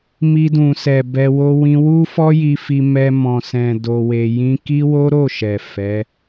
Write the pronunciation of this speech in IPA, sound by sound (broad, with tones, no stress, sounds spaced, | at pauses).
m i˧ d ũ˨ s ɛ˨ b ɛ˧ w o˧ w ĩ˧ w u˦ f ɔ˦ j i˧ f i˧ m ɛ˧ m ɔ̃˨ s ɛ̃˨ d o˧ w e˧ j ĩ˦ k i˦ w o˦ ɾ o˦˨ ʃ ɛ˨ f ɛ˨˦